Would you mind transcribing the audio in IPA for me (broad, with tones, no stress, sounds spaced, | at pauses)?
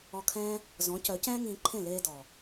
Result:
ɔ˧ kʰ ɛ̃ː˦ | z ɔ̃˨˦ c œ˨˦ c ɛ̃ː˦ ŋ ĩː˧ ǃʰ ẽ˦˨ l eː˧ d ɔ˨